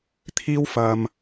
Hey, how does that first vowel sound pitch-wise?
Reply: high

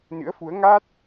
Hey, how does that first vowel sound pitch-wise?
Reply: rising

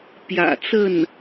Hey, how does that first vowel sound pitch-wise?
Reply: low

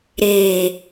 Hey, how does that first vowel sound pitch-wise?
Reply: low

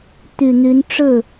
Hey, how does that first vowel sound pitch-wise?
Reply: low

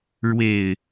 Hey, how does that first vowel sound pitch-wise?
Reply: low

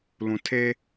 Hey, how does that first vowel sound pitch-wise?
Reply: low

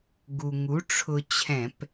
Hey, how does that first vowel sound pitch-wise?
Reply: low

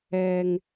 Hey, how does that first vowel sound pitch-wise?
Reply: low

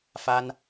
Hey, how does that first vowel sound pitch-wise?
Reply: high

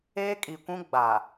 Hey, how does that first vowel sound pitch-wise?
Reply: high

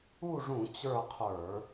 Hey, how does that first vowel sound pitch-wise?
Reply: falling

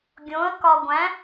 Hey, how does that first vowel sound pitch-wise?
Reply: rising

